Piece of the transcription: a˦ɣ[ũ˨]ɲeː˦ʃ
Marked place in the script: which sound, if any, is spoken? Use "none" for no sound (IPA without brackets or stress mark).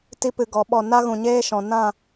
ũ˨